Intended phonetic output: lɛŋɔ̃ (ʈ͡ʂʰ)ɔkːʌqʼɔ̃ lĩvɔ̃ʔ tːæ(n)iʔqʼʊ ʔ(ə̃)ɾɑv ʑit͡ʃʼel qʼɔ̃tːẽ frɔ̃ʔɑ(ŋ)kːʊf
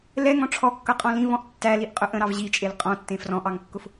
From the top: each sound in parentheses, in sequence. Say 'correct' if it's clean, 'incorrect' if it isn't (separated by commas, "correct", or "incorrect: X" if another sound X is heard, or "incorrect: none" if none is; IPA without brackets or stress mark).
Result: correct, incorrect: l, correct, correct